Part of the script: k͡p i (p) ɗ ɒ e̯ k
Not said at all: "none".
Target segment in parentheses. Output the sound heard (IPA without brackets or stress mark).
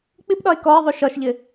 p